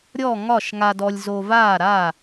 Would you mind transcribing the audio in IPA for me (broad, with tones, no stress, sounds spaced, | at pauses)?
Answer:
ɾʲ ɔ˥˩ ŋ ɒ˥˩ ʃ ŋ a˧ d ɔ˧ lʲ z o˧ v aː˥˩ ɾ a˥˩